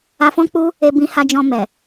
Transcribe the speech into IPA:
a˧fɔ̃˦k͡pu˦ | e˧ bĩ˧ha˧d͡ʒɔ̃˧mɛ˨

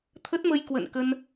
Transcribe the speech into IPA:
t̪ʰə˦˥t̚mə˧j kwə̰˧˨nkə˧n

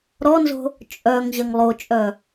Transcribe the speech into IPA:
ɾɔnzo̤ | t͡ʃʼœŋ ʑɐŋlˠot͡ʃʼœ

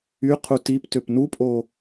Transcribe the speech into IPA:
y qʰutiptøp nupʼo

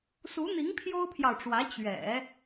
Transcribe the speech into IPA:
su˧˥n̪i˧˥ŋ pʰjo˥ʊ̯pʰjɑ˨ʊ̯ʈ͡ʂwä˧˥ t͡ɕɥɛ̰˨˩˦

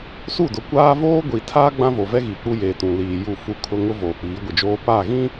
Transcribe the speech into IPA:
su˦˨dʊ˨kʷaː˦ voː˦ɡʷi˨tʰaː˦ ɡ͡bã˦vo˨vɛ˦ ɣi˨k͡pu˦ jeː˨tũ˨liː˨ ju˦˨fu˦kʰʊ˦ ŋʊ˦ voː˨k͡piː˨˦ɡʷɪ˨d͡ʒoː˦ paː˦˨ɣĩ˦

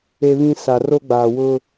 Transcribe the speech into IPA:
e˦βĩ˦ sa˨ro˦ɡ͡baː˨wʊ˦

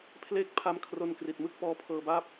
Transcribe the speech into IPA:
pʰle˥˩k̚ pʰa˦˥mkʰro˧n kri˨˩t̚mɯ˥˩k̚ pɔː˦˥pʰɤː˧baː˥˩p̚

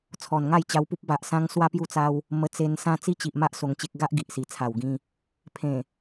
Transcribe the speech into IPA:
t͡sʰɔ˨˩nŋa˥˧jt͡ɕa˧wpu˦p̚ ba˨ʔsã˧ŋ swa˦pju˦t͡sa˦w | mə˧t͡se˧nsã˦ t͡si˦t͡ɕi˨ʔma˦ʔ so˧ŋt͡ɕe˦k̚ ɡa˦ʔɡi˨ʔsi˨˩ t͡sʰa˨˩wɡĩ˧ | pʰẽ˨˩

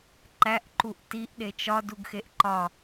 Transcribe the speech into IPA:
ǃæʔǃuʔ tiʔɗe t͡ʃɒduɡxeʔ ǃɒ

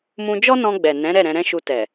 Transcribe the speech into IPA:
mũ˧d͡ʒɔ˦nɔ̃˧ɡ͡bɛ˨ nɛ̃˨˦ ɾɛ˦˨ɾɛ̃˧ɾɛ̃˦ʃu˧ tɛ˨

